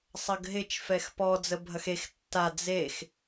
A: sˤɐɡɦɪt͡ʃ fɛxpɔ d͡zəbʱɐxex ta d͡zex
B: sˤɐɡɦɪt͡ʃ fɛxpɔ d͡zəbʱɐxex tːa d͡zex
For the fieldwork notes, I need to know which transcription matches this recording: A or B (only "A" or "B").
B